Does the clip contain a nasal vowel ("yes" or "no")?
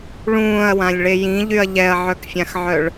yes